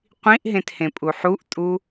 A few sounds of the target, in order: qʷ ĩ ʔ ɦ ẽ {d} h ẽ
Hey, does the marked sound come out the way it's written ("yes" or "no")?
no